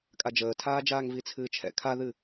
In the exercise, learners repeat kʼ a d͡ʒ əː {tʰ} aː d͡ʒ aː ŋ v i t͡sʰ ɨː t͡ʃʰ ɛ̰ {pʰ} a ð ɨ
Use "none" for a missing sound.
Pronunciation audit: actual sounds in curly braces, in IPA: tʰ, kʰ

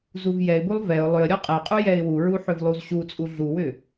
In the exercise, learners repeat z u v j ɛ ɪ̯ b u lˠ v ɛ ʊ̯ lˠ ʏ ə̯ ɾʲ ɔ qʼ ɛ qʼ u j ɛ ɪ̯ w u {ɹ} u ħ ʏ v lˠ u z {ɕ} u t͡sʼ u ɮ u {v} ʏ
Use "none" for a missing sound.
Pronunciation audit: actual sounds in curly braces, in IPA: ɹ, ɕ, w

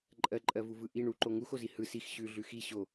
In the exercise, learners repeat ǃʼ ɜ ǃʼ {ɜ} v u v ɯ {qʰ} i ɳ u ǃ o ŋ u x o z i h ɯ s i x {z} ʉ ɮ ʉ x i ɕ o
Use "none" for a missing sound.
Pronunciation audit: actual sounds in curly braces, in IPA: ɜ, ʔ, ɕ

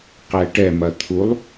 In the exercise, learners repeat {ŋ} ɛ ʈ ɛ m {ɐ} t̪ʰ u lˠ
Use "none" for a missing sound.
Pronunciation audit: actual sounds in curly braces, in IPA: q, ɐ

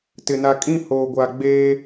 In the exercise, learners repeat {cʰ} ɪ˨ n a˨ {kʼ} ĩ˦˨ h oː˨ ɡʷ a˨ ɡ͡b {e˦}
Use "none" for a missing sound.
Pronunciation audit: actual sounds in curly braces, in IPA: t, kʼ, eː˦

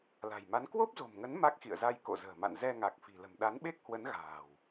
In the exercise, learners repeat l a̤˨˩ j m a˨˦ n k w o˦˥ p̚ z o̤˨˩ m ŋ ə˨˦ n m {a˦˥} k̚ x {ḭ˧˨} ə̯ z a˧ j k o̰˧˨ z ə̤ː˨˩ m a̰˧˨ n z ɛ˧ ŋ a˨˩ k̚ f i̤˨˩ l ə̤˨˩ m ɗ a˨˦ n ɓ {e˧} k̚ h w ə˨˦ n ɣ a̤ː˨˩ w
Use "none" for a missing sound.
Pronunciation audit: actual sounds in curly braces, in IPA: a˦˥, ḭ˧˨, e˦˥

